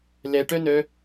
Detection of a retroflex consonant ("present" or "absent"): present